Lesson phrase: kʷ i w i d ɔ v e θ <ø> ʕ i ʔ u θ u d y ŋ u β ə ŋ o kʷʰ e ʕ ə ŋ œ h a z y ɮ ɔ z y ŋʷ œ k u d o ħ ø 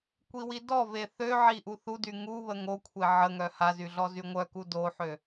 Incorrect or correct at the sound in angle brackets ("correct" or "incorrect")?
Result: correct